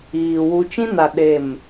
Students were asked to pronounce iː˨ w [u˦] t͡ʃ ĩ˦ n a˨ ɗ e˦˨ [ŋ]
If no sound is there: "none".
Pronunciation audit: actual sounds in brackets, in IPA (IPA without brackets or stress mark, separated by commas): u˨, m